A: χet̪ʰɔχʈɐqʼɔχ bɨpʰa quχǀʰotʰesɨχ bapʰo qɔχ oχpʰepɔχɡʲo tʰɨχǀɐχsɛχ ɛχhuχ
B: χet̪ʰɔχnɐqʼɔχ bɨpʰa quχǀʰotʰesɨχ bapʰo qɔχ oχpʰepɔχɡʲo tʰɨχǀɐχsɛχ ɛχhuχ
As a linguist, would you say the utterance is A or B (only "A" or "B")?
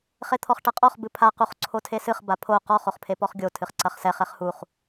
A